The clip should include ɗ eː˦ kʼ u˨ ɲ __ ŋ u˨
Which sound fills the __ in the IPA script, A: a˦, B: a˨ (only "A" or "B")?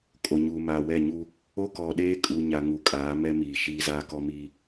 B